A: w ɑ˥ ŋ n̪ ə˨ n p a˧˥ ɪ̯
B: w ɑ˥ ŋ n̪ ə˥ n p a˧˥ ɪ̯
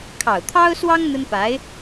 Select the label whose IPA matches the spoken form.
B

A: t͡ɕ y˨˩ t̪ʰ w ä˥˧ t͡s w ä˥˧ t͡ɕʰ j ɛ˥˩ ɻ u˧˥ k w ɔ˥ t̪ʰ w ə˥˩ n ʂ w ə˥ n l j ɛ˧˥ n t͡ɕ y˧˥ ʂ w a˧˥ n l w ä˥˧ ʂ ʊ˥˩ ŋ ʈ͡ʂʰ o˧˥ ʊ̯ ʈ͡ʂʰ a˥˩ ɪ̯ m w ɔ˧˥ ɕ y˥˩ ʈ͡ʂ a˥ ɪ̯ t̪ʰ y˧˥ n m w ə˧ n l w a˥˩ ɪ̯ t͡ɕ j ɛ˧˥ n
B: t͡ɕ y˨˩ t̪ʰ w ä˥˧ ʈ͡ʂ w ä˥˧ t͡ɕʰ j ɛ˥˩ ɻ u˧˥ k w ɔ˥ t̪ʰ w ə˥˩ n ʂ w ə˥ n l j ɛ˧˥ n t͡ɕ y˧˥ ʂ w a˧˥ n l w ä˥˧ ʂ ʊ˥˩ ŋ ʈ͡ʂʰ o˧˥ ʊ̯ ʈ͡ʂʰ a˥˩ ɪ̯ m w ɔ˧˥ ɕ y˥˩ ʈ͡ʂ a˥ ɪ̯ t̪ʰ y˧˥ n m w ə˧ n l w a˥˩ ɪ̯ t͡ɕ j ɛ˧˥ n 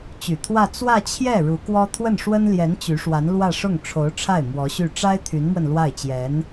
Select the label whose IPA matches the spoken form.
A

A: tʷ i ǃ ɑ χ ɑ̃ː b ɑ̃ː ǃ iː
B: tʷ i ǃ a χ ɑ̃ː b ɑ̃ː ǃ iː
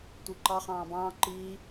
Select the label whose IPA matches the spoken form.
A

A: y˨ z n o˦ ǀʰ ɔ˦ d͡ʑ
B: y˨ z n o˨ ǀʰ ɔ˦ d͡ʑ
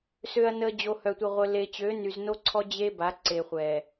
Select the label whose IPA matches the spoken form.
A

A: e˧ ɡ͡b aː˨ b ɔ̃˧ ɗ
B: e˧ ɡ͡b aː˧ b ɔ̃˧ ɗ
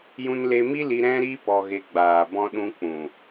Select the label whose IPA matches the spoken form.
A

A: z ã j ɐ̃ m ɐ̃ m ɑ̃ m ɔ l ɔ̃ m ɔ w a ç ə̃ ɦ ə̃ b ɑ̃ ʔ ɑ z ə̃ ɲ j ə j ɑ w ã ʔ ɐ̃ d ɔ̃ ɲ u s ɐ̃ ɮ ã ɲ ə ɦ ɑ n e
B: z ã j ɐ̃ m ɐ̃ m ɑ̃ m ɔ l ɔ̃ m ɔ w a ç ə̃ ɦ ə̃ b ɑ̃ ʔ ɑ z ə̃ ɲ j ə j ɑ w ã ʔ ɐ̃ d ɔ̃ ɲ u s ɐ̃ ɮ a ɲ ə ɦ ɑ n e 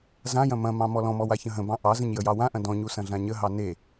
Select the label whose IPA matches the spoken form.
A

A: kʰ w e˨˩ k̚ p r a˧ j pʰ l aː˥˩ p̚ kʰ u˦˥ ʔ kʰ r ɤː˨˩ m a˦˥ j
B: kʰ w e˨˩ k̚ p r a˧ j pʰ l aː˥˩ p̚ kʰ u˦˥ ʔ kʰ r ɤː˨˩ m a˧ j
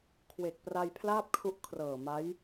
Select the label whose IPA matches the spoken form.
A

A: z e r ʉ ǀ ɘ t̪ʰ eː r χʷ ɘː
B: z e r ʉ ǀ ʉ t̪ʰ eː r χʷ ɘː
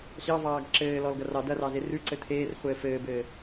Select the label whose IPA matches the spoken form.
A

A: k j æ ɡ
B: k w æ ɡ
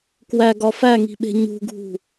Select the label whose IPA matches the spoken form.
B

